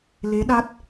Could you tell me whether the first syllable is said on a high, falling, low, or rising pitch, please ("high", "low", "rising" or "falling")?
rising